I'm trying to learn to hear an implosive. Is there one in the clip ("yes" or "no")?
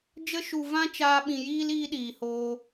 yes